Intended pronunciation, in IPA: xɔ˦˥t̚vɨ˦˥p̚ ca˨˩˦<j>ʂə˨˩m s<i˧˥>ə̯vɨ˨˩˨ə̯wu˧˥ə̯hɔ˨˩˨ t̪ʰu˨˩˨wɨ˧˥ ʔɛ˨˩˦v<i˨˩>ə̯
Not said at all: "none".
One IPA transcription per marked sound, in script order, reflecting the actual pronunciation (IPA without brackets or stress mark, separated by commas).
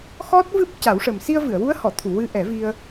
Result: w, i˧, i˧